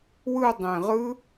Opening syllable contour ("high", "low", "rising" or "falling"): falling